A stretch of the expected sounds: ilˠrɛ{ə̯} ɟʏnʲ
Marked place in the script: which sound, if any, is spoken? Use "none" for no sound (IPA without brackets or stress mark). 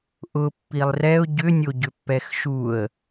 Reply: ʊ̯